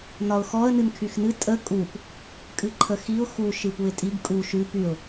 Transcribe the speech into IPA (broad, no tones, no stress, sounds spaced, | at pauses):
n ɒ ʊ̯ x ɔ ə̯ n ɨ n kʰ y x n ɨ tʼ ə kʼ u p | kʼ ɨ ǃʰ ə x i ʊ̯ x u ʃ ɨ p u ɪ̯ tʼ i ɡ kʼ u ʃ ʉ p y ʊ̯